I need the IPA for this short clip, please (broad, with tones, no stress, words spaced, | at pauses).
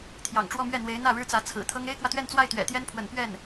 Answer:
t̪ʰjɑ̰˨˩ŋʈ͡ʂwɔ˥˧mɥɛ˥˩ n̪we˧˥ɪ̯n̪ä˥˩ ɻɻ̩˥t͡sä˧˥ t͡sʰɹ̩˨˩t̪ʰɤ˥ŋ e˥ɪ̯kwä˨t̪ɥɛ˥˧nt͡swa˥˩ɪ̯ t̪ɥɛ̰˨˩t̪jɛ˥npʰwə̰˨˩n pɥɛ˥˩n